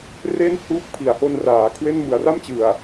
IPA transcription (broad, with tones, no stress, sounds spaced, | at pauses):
r e˥˩ n h uː˦˥ k̚ pʰ i˩˦ a̯ h o˦˥ n r aː˩˦ kʰ w e˥˩ n m ɯ˨˩ a̯ r a˥˩ m t͡ɕ ɯ˨˩ a̯